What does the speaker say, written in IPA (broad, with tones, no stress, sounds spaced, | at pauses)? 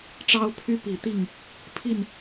ʈ͡ʂ ɑ˦ ʊ̯ pʰ y˦ p i˨˩ t̪ i˥˨ ŋ | pʰ i˥˨ n